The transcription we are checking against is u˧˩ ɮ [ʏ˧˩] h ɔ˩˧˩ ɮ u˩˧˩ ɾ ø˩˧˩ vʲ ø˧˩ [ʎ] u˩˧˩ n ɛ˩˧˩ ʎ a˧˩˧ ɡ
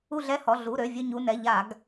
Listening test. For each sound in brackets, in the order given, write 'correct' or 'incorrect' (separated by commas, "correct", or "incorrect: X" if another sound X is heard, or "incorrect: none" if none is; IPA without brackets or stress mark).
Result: incorrect: ɛ˧˩, incorrect: ɲ